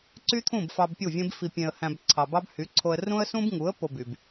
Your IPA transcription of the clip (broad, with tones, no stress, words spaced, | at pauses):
ǀy˦t̪ʰũ˦˨b fɑ˧bpʲu˦˨vʲẽ˦b fi˧pʲẽ˧ə̯hæ̃˧b ǀʰɑ˨bɑ˦bhy˨˦ǀʰo˧ə̯ rũ˦ə̯sũ˦bŋu˨˦ə̯ po˧by˨b